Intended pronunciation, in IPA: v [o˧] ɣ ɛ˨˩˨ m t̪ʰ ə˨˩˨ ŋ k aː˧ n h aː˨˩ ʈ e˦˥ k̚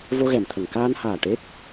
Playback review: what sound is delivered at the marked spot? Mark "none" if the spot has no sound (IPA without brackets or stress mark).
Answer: o˧